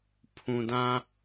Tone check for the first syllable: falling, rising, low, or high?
low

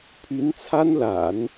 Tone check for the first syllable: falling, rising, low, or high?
rising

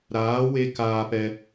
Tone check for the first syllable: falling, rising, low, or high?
rising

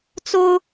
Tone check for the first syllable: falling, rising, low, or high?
high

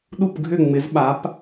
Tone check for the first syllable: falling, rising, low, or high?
falling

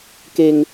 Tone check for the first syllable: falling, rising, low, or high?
low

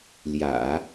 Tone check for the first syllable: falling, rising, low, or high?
low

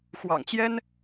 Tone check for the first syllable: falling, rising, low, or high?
low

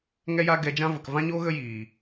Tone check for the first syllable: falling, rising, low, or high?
high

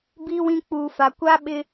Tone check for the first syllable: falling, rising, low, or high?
high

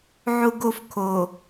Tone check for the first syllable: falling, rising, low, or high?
high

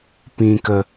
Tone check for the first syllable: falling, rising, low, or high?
low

